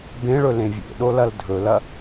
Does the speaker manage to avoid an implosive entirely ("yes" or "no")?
no